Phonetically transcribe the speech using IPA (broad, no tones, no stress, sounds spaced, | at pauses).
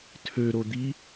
tʰ ø ɾ o d̪ i